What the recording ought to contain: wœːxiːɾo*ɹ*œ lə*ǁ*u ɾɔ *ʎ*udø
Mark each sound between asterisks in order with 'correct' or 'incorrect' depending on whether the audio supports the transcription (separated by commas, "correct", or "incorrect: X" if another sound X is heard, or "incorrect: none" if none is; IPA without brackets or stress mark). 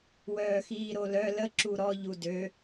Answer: incorrect: l, correct, correct